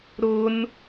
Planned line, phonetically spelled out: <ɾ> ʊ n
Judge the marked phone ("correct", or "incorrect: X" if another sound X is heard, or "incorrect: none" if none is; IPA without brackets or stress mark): correct